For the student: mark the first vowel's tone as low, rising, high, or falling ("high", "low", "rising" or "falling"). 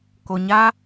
low